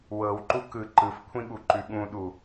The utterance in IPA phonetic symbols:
w ɤ w ǃ u k ɯ ǃ ɯ f kʷʰ ĩ ɠ u ǃ ʉ ɠ ũ ɗ u

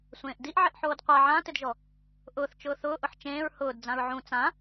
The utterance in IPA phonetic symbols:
sʷ ẽː ʔ d i ʔ ʕ ɪ ʔ ħ oː d qʷ a ʕ ã t ɪ d ʒ ɔ | ʔ ʊː θ t͡ʃ ʊː θ ʊː ʔ ʊ ħ t͡ʃ ẽː ɹ h ʊː d d͡z ã ɹ ʕ ũ t͡s ã

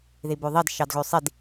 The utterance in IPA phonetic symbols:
ð i b ø ðˤ i d ʃ ɑ d ɣ ø sˤ i d

